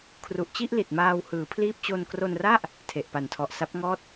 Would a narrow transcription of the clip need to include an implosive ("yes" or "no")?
no